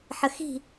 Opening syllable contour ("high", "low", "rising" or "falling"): low